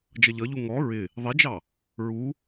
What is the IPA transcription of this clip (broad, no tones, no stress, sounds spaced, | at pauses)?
d͡ʒ ʌ ʎ ʌ ʎ u ŋ ɔ ɹ ɪ | ðˤ i d͡ʒ ɑ | ɹ u